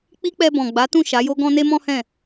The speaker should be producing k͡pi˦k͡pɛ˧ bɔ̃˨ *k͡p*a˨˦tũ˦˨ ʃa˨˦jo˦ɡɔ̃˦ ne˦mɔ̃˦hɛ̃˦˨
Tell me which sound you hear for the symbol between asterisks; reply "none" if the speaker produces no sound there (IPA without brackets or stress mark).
ɡ͡b